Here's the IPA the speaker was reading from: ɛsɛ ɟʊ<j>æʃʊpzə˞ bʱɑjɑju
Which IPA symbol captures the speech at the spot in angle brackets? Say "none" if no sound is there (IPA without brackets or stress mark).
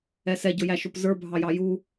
j